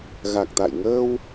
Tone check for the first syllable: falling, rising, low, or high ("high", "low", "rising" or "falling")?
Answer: low